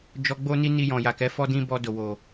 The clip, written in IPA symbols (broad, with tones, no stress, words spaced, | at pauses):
d͡ʒɔ˧ɡ͡bo˦ni˦ni˧ jɔ̃˨ja˨kɛ˨˦ fɔ˦dĩ˦ bɔ˧do˨wo˨